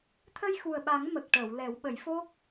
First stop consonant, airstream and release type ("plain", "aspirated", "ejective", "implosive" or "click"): aspirated